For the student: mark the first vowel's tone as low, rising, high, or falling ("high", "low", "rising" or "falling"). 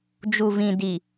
low